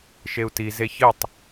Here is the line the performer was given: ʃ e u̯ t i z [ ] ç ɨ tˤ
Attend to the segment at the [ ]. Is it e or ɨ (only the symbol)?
e